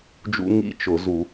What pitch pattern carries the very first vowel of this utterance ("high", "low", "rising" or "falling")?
high